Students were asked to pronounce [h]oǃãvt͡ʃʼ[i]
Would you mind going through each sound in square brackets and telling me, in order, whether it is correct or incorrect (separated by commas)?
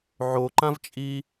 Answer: incorrect, correct